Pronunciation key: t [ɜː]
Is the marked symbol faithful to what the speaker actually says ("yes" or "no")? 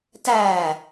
no